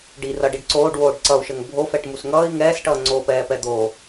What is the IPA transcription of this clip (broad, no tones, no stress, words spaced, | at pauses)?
ɖirʌɖiɖ ǀoːɖwoːɖ ǀʌu̯ʃəŋ bʱofɛʈmus ŋʌːi̯ ŋɛːsʈʌː ŋ͡ǀoːpɛːpɛ d̪o